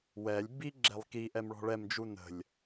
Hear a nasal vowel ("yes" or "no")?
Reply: no